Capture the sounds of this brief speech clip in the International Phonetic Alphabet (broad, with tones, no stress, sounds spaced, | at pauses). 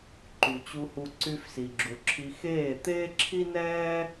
ǃ y˨ t͡ɕ u˧ h u˧ ǀ y˧ f s i˨ ɡ͡ǁ u˨ ǁʰ i˧ x eː˦˨ t̪ eː˦ ǁʰ i˦ n ɛː˦